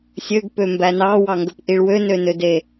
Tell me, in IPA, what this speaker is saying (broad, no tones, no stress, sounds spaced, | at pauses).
sʲ ø ɡ p ø m b æ n ɑ w ɑ ŋ ɡ ɵ p ʔ i ɭ w ø n ø n ø d e